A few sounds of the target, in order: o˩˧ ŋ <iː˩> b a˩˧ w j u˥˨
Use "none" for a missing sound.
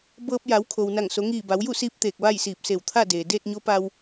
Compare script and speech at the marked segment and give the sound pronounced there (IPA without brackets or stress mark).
iː˧˩